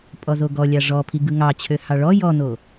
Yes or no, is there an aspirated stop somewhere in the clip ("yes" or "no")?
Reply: yes